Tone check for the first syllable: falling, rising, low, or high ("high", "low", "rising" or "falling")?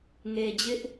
low